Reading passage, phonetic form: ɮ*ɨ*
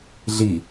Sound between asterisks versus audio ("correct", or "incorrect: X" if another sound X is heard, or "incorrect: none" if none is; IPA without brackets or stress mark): incorrect: i